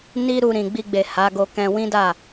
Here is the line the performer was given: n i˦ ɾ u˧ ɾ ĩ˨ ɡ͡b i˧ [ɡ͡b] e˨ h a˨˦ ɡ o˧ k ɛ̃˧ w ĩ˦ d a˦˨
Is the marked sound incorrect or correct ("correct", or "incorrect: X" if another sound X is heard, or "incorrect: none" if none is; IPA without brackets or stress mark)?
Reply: correct